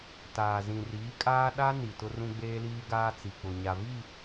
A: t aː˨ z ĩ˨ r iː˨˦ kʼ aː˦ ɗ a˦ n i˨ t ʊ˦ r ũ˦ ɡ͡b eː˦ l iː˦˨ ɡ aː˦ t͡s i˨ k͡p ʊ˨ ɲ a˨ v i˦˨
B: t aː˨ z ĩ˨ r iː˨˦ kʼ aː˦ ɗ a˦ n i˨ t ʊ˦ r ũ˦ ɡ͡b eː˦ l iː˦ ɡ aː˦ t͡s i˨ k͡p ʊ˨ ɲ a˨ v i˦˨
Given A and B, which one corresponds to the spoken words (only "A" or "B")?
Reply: B